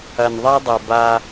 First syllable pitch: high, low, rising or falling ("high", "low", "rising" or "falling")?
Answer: low